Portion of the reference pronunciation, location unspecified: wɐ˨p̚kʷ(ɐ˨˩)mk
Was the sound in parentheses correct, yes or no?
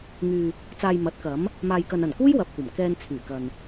yes